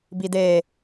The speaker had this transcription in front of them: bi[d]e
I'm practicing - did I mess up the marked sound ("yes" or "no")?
no